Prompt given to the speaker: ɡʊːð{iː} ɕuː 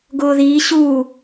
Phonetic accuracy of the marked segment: correct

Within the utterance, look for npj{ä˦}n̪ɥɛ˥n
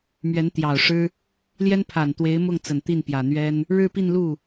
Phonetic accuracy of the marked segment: incorrect: ä˨˩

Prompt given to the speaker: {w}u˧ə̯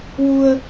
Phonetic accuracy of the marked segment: correct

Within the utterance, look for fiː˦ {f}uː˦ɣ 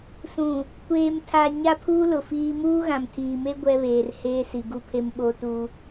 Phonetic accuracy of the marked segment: incorrect: m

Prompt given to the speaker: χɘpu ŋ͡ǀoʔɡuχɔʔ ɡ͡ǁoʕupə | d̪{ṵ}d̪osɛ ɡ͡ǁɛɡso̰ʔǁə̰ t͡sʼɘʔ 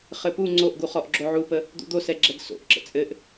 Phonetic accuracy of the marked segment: correct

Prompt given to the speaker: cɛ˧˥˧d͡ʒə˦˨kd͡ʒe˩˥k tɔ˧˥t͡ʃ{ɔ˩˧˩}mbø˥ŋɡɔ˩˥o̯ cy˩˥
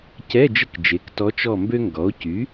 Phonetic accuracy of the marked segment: incorrect: ɔ˦˨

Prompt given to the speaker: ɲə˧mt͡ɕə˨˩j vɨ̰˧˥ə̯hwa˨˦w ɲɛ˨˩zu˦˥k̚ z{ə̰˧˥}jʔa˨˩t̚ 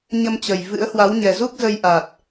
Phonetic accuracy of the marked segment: incorrect: ə˧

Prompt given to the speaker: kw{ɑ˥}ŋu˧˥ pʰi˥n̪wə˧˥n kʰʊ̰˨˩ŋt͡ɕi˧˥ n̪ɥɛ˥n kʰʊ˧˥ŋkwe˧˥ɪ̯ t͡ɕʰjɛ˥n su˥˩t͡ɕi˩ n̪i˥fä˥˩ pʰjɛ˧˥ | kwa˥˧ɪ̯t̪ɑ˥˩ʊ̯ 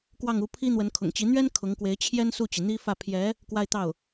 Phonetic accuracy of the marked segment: incorrect: ɑ˥˩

